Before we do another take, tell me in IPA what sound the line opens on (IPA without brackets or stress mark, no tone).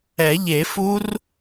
ɛ